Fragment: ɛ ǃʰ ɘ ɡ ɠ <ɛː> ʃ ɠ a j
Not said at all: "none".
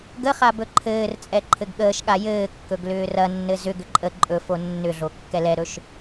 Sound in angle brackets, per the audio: əː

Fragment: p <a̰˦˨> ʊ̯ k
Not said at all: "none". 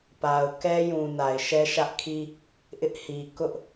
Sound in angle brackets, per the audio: a˨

